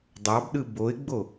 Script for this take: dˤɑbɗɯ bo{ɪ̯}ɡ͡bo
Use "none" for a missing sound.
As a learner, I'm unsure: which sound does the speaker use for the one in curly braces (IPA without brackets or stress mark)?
ɪ̯